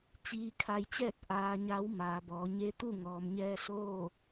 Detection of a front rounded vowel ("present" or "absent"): absent